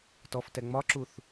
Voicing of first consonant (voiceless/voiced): voiceless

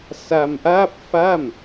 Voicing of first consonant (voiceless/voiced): voiceless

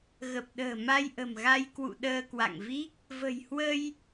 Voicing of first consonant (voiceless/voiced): voiced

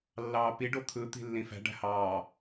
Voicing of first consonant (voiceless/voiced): voiced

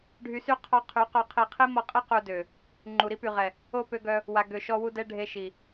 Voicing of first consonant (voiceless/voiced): voiced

